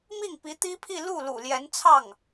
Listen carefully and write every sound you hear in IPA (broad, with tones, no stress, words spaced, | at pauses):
mi˥˩ŋ pi˧˥t̪i˥pʰi˥˧ lu˥˩ lṵ˨˩ljɛ˧˥nt͡sʰɑ˥˩ŋ